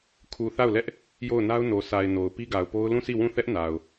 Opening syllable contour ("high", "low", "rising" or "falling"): low